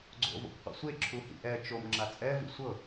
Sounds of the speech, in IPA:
ɡ͡ǀo̰vo̰kqʷḛsʷe ǁʰuhḭʔɛ t͡ʃom ŋ͡ǁat͡sʼɛ vḭsʷɤ

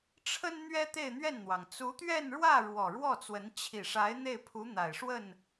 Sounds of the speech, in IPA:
ʈ͡ʂʰə˥n n̪ɥɛ˥t̪e˥˧ɪ̯n̪ɥɛ˥˩nn̪wɑ˩ŋ t͡su˧˥t̪ɥɛ˥˧nɻwä˥˩ ɻwɔ˨˩ɻwɔ˥˩t͡swə˧˥n t͡ɕʰi˨˩ʂa˧˥ɪ̯ n̪e˥˩ɪ̯pʰu˧˥ n̪a˨˩ɪ̯ʂwə˥˩n

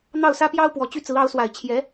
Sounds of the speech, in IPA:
n̪ɑ˥˩ʊ̯sä˥pjɑ˥ʊ̯ pwɔ˧˥ t͡ɕy˥˩t͡sɹ̩˧˥ ɑ˧˥ʊ̯swa˨˩ɪ̯ t͡ɕʰjɛ˧˥

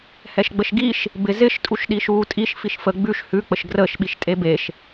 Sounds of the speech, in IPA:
hɛʃɡ͡bəʃɡiʃ | bɪ zɪʃ tʼuʃɗiʃuːtʼiʃ fiʃfə ɡ͡bʉʃ hʉ k͡pəʃɡrəːʃ ɓiʃtʼebeʃ

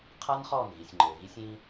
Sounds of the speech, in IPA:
qʰa˦n χɔː˦˨nɣi˨sʲŋ͡ǃɘː˨ɣi˦sʲ ĩ˦

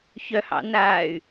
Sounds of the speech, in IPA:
çœhɑ̰naːy̯

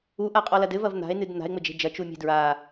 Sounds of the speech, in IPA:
uʔaqʼɔlɐd ɘvɐv n̪a̤e̯nɨd n̪a̤e̯ŋ͡mɘd͡ʒe̤ d͡ʒɐt͡ʃumʲe̤ dɹa

